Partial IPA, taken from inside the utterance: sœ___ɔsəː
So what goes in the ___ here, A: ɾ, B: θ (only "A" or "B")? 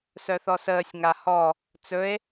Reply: B